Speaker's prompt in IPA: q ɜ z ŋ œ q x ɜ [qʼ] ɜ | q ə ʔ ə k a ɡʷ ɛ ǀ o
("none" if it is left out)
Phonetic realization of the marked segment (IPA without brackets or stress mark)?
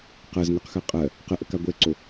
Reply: qʼ